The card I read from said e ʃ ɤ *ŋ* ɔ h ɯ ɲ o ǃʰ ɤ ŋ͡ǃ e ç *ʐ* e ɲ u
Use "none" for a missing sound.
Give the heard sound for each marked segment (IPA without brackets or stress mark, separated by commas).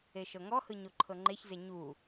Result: ŋ, z